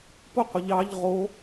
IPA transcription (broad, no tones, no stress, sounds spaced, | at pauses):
p ʊ qʷ ə ʎ ɑ ʎ ʁ o